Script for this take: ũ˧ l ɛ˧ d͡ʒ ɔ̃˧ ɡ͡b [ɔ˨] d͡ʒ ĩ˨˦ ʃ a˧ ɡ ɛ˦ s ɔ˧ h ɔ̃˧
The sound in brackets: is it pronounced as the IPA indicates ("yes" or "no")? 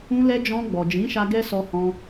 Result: yes